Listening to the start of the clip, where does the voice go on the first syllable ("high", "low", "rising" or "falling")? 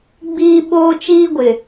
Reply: high